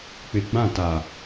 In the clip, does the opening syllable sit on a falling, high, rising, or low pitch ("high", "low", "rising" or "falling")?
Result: low